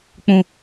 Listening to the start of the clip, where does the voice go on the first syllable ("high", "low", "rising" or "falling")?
low